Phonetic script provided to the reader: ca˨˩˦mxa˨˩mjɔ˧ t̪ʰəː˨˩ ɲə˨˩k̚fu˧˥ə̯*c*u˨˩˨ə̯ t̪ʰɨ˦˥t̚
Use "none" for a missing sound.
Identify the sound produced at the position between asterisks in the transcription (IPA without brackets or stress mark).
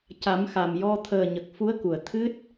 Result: k